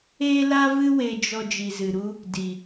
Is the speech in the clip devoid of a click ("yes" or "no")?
yes